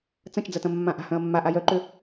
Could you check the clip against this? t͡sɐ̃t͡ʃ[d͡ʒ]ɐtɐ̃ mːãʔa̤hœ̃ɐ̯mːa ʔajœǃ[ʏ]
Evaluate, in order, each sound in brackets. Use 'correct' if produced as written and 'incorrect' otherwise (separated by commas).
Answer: incorrect, correct